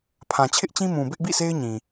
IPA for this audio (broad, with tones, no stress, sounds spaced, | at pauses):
pʰ ã˨ t͡ɕʰ ɪ˦ ʔ t͡ɕ ĩ˦ m ũ˨ b ɪ˦ ʔ b ḭ˦˨ sʰ e˦ ɪ̯ ɲ ĩ˨